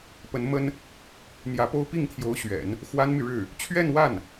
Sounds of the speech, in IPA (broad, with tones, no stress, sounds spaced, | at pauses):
p ə˧˥ n m ə˥ n | n̪ j ä˧˥ p o˥ ʊ̯ p i˥˩ ŋ t̪ʰ j o˧˥ ʊ̯ ɕ ɥ ɛ̰˨˩˦ n | x w a˥ n m y˨ ɻ ɻ̩˥˩ | t͡ɕʰ ɥ ɛ˥˧ n w a˥˩ n